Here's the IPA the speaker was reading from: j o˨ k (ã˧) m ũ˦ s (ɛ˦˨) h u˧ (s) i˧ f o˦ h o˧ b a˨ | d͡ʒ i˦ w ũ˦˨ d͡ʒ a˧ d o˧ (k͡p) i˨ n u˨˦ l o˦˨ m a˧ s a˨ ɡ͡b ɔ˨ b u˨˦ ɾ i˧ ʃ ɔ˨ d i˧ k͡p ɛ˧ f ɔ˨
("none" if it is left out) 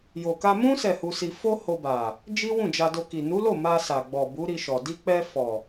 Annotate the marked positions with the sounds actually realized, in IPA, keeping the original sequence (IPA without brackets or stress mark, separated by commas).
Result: a˧, ɛ˦˨, s, k